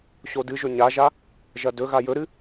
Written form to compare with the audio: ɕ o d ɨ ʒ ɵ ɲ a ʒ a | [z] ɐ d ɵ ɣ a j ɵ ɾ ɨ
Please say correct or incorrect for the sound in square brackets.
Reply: incorrect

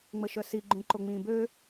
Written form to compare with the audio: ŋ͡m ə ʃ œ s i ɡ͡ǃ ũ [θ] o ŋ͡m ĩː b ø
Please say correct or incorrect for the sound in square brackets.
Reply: incorrect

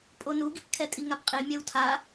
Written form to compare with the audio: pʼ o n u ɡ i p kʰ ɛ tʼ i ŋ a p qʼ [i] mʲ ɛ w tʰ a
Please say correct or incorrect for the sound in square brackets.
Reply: correct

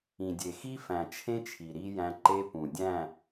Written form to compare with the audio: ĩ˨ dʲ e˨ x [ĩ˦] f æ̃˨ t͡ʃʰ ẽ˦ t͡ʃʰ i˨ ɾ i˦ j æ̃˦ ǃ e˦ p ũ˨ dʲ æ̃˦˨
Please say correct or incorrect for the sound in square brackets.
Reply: incorrect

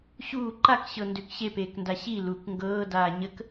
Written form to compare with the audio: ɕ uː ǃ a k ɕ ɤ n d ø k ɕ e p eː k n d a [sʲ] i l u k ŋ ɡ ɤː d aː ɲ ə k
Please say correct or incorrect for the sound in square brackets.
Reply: incorrect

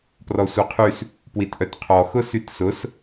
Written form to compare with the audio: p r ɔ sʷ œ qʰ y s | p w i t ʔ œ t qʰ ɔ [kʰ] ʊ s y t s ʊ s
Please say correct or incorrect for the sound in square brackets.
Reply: incorrect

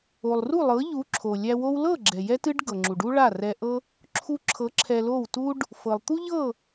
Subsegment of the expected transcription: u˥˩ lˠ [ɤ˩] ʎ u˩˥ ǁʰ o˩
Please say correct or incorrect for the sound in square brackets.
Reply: incorrect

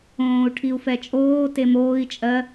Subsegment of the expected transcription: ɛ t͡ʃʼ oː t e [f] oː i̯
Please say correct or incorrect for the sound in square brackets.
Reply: incorrect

